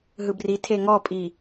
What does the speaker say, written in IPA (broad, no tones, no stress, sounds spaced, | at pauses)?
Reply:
ɦ ɯ b r i tʰ e ŋ ɔ pʼ i